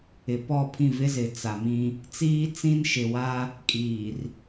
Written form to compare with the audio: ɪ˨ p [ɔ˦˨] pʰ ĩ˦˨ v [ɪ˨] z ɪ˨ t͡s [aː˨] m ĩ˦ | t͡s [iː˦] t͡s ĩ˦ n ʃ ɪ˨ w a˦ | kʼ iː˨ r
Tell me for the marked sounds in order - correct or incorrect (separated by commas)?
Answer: correct, incorrect, incorrect, correct